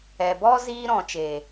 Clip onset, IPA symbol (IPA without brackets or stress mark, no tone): ɛ